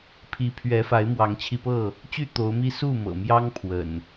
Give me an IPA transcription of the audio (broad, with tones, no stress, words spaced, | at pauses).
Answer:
pʰi˨˦pʰɥɛ˨˦fa˨˦ɪ̯ mwɑ˨˦ŋt͡ɕʰi˧pɤ˥˨ | t͡ɕy˥˨t̪o˨˦ʊ̯mi˦ su˥˨mɤ̰˨˩ mjɑ˦ŋ pʰwə̰˨˩n